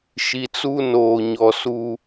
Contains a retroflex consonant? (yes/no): no